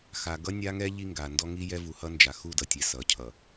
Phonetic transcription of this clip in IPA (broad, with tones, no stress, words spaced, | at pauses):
xa˨ɡʌ˦nʲa˦ŋɛ˦ ʎi˦ ŋɡa˨ndɔ˦ ŋi˦ jɛ˦ vu˨hʌ˦nd͡ʒa˨ xu˦˨dʌ˨tʲɛ˨ sʌ˨ cʰʌ˨